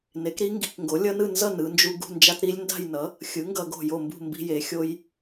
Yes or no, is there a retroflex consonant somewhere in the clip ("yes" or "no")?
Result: no